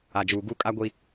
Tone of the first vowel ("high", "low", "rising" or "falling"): low